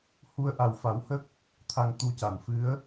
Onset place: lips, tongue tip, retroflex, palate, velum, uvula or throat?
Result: throat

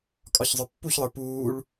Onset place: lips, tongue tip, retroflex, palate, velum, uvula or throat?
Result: velum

